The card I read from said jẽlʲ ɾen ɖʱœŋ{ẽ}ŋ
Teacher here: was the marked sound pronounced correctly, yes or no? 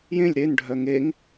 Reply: no